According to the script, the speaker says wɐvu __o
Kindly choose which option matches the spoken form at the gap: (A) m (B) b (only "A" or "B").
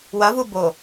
B